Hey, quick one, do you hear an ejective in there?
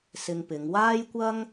no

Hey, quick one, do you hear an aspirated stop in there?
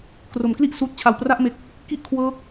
yes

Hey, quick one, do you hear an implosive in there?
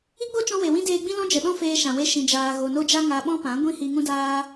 yes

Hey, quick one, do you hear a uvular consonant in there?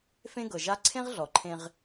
yes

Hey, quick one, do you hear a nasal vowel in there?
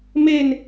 no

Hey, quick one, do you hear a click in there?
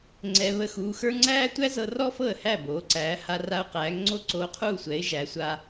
yes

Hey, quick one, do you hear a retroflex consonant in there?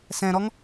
no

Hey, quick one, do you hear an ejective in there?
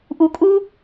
yes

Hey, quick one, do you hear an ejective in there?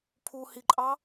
yes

